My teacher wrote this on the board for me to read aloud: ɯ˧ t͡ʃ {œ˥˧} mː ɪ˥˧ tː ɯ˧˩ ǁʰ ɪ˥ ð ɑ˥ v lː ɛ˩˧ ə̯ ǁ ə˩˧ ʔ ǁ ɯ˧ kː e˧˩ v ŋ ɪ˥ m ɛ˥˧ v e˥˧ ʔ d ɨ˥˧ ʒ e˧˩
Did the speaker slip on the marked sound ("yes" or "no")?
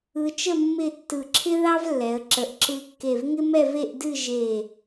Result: yes